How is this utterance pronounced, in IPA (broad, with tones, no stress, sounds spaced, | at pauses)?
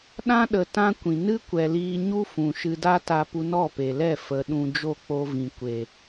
ɗ ã˦ ɗ ə˧ t ã˦ kʷ ĩ˨ n ɨ˦ kʷ ɛ˨ l iː˧ ɲ u˦ f ũ˨ ʃ ɨ˧ d a˦ t a˧ p u˧ n ɔ˦˨ p e˨ l ɛ˦˨ f ə˨ ɗ ũ˧ d͡ʒ o˦˨ k͡p o˧ v ĩ˨ kʷ e˨